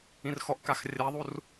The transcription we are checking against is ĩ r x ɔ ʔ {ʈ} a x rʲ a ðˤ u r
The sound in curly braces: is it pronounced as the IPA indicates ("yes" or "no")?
no